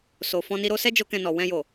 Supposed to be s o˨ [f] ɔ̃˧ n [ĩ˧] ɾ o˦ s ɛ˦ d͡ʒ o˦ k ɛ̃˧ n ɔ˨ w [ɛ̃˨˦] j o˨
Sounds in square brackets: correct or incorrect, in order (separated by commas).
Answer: correct, incorrect, incorrect